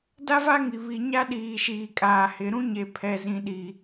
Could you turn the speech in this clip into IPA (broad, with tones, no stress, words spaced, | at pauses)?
da˦va˦ŋi˨ βi˨ ɲa˦ɗiː˨ʃiː˨kʼaː˨ hɪ˨ ɾũ˦ɲe˨pʰɛ˨ zĩ˨ɗi˨